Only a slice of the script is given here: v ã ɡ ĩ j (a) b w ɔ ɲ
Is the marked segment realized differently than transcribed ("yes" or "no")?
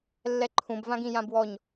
yes